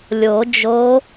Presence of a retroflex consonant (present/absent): absent